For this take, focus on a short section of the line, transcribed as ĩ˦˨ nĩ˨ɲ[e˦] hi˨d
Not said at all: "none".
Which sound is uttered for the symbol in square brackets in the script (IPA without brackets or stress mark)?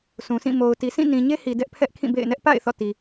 e˦